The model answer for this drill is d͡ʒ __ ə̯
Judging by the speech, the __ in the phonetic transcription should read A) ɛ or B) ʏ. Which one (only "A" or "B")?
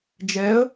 A